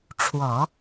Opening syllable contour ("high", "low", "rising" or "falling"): low